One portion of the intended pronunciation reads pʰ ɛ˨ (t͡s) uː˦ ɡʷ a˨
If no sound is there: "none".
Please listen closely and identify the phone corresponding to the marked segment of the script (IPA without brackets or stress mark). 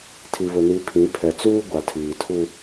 t͡s